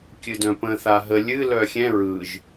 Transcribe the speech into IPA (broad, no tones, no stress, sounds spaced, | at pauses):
kʲ ɨ d œ̃ p ə̃ θ a ɦ ə lʲ ɨ l œ xʲ ɛ̃ ɹ ɯ ʒ